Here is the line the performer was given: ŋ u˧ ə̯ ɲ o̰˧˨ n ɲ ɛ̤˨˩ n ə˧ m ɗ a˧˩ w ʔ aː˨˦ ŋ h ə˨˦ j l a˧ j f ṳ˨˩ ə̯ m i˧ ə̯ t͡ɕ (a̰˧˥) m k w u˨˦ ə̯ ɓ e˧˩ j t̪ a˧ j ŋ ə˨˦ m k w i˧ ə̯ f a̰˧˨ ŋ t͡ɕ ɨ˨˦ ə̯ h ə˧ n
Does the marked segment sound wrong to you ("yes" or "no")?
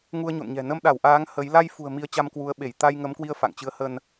yes